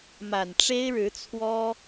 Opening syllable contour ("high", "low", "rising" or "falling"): low